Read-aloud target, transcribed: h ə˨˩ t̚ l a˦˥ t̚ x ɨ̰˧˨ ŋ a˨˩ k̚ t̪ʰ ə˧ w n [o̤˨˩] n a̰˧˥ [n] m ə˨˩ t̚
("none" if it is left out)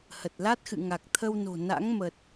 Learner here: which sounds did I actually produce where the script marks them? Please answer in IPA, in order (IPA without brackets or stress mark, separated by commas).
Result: o̤˨˩, ŋ